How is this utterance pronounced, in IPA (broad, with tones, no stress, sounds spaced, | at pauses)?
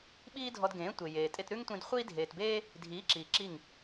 ɓ iː˦ dʱ ɔ˧ d ɡ ẽː˨˦ tʷ e˨ j eː˨ tʼ e˧ t ɾ ʉ˦ ŋ tʷ ĩ˧ d χʷ iː˦ dʱ eː˨ t b eː˦ | dʱ iː˨˦ ǁ iː˨ ǁ i˦˨ ŋ